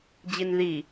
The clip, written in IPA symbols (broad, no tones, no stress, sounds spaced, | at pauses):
d͡ʑ i n ð i